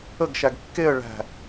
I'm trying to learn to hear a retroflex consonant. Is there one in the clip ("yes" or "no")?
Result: yes